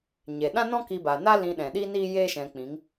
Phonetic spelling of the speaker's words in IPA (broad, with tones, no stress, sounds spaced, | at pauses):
ɲ e˨ ɗ ã˦ n ɔ̃˦ k i˧ b a˨ n a˦ l ĩ˧ ɗ ɛ̃˨ ɗ i˦ n iː˦ j eː˦ ʃ ɛ̃˧ k͡p ĩ˨˦ ŋ